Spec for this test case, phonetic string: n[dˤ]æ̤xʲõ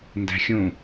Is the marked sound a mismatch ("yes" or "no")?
yes